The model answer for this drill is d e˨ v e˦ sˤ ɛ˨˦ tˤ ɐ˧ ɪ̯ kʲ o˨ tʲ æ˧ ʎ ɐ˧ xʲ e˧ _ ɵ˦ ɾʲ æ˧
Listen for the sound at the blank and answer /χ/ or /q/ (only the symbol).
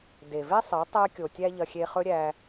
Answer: χ